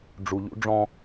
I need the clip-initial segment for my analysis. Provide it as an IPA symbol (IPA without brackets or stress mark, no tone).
ɖ͡ʐ